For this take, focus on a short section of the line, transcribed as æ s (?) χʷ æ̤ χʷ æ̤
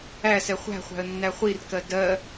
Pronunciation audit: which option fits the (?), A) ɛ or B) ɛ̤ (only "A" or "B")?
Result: A